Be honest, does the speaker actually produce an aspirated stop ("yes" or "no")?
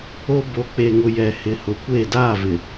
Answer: no